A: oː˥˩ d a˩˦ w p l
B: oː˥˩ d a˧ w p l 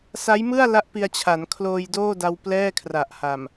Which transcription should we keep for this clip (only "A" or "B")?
B